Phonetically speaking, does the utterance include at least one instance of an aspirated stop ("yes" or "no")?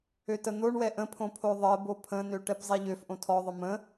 yes